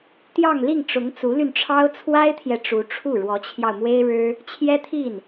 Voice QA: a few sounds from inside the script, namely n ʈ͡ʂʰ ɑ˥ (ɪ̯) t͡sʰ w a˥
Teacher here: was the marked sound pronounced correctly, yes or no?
no